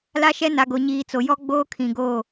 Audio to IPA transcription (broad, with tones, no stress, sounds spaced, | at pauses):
l a˦ ʃ ɛ˦ n a˨ ɡ o˨ ɲ iː˨ t͡s o˨ j ɔ˦ ɡ͡b oː˦ kʰ ĩ˨ ɡ oː˦˨